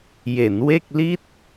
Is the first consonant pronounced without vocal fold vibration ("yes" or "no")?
no